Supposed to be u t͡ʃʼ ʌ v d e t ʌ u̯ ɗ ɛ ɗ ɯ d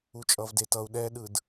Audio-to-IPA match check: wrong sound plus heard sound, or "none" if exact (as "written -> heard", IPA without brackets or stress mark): none